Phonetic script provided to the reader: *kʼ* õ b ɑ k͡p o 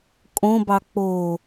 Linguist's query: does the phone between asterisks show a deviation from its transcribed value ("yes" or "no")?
no